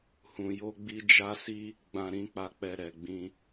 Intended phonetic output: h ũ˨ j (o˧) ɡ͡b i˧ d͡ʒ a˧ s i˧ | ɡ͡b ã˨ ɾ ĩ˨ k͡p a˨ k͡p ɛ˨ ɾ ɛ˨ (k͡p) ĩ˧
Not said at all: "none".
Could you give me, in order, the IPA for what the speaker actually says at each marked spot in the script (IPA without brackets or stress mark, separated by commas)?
o˧, ɡ͡b